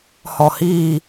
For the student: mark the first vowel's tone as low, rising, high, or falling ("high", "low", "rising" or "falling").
low